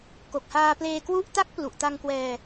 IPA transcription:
ko˨˩k̚haː˧pleː˧kwu˥˩ʔ ta˥˩k̚plu˨˩ʔta˧ŋ kwɛː˧

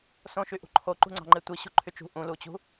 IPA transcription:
sõʃyʔṳ ǃʰoǃṳŋ͡ǀɑ̤ŋ͡ǃe tʷiɕṳ ǃʰyt͡ʃṳ ʔũlut͡ɕṳ

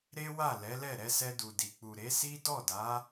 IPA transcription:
ɾe˦wa˦˨ lɛ˨˦lɛ˦˨ ɾɛ˧sɛ˧du˨di˨ k͡pu˨ɾe˨˦si˦ dɔ˦˨da˨˦

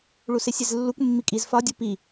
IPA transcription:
ɭusesʲezlːukʷ mːikʼiz fɒ dʲupi

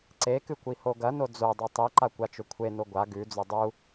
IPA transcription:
ǀekɨkʷiho ɡɐno d͡zodˤe tˤiǃakʷat͡ʃɵ kʷʰeno ɡʷa ɡʉd͡zɵ dˤu

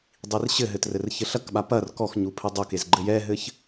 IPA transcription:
dˤirɕɘɦɘt rɘrçɘɬɐkɓa pɐr kɔx ɲupʰɘdˤokez ɡ͡ǃɘjɛɦɘç

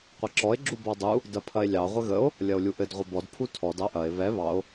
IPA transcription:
qʷɐǁɔe̯ ɡ͡ǁubɔdˤu | dɐpʰɐe̯lʲɑ ʁʷɘɣəo̯ | lʲɐo̯lʲuʔɘd ʁʷɘbɔd pʰutʰɔd ɑʔɐe̯ βɛ βɑo̯

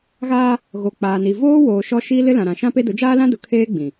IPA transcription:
ɣaː˦ | ɣo˨ k͡paː˨ni˨ voː˦ woː˨ ʃɔ˦ ʃiː˦lɪ˦lã˨ɾã˨ ʃã˦pe˦dʊ˨˦ d͡ʒaː˦lã˦dʊ˨ kʰeː˦ɡ͡bĩ˨

